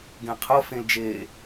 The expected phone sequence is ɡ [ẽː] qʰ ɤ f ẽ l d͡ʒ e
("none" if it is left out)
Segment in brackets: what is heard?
ẽ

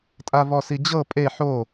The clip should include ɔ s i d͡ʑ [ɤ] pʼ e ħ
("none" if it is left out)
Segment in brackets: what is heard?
ɤ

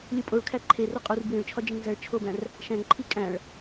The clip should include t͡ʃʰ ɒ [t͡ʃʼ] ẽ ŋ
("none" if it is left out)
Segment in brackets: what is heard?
d͡ʒ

